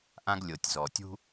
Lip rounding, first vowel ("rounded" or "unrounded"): unrounded